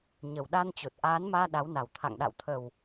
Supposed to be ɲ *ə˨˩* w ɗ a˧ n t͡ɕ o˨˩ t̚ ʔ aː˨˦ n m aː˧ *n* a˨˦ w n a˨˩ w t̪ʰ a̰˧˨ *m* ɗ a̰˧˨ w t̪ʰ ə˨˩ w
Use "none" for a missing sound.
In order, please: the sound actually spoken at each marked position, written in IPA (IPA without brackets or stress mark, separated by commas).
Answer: ə˨˩, ɗ, ŋ